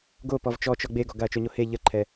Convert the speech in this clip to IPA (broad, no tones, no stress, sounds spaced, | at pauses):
ɡ o p ɔ v t͡ʃ ɔ t͡ʃ ɔ ɡ͡b e ɡ ɔ ɡ a ɐ̯ t͡ʃ o ɲ o h e ʎ ə ǃʰ ɛ